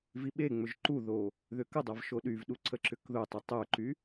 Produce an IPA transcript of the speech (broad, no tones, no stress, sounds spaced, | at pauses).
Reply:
v i ɓ e ŋ͡m ʏ ʒ ǃ u ð o | ð ʏ k ə dˤ a v ʃ o ɗ y v ɗ u ǀ ə ǁ ʏ k ð ʊ tˤ y tˤ œ ǃ y